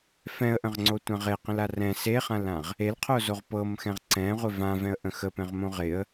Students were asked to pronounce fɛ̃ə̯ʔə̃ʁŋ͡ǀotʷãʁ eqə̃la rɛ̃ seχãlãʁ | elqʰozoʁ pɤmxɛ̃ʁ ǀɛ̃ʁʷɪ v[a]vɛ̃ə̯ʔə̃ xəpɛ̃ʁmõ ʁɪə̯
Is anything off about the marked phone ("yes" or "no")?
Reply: yes